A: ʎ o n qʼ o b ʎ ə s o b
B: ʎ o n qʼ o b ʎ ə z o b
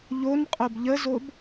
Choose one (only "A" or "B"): B